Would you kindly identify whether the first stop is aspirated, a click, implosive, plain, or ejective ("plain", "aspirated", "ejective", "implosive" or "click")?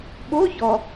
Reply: implosive